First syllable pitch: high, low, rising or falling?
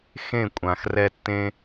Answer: falling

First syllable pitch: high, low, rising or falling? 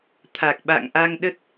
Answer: low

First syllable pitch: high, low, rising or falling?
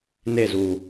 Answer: falling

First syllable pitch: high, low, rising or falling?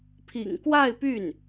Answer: low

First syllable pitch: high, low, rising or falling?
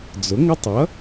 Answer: rising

